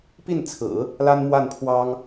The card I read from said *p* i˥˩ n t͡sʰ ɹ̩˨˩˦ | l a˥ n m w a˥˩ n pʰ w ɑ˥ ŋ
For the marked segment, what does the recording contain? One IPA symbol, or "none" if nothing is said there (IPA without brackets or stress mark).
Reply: p